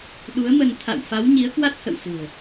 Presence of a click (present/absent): absent